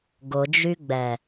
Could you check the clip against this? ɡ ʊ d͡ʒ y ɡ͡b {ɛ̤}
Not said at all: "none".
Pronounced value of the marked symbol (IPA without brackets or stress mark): ɛ